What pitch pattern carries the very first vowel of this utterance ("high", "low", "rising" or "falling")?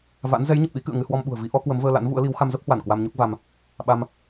rising